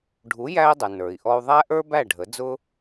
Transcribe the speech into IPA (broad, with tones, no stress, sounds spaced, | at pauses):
ɖʱ u˩˥ j æ˧ i̯ dˤ ə˩ n ə˞˩ i̯ ʔ ɔ˧ u̯ ðˤ æ˥ ʔ ə˞˥ b æ˥˩ ɖʱ ə˩˥ d͡z ʊ˧